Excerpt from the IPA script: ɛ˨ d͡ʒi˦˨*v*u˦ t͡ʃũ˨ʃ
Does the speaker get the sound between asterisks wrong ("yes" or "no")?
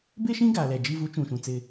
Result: no